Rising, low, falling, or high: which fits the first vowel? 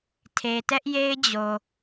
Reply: low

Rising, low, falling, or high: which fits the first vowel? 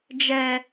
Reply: low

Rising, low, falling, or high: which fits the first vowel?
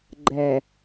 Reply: low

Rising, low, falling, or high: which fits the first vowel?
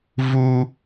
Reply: high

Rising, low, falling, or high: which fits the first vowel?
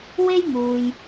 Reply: high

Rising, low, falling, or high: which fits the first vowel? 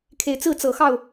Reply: low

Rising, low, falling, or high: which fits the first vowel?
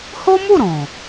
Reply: high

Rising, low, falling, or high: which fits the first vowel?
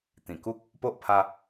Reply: low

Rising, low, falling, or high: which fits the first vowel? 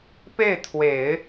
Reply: falling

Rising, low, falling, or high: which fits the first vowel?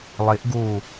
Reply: rising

